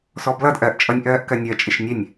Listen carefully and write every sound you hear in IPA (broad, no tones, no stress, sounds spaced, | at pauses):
s ɔ b l ʌ d ʔ ɜ ʔ t͡ʃʼ ʌ nʲ ʔ ɜː ʔ k ɜ nʲ ɜ t͡ʃʼ ɪ ʃ nʲ ɛ nʲ